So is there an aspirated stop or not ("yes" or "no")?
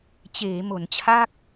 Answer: yes